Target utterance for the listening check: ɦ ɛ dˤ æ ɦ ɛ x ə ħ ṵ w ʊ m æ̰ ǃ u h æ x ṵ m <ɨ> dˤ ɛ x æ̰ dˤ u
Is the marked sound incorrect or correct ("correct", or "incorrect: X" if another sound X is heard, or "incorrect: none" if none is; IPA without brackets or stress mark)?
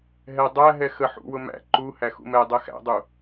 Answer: incorrect: ɛ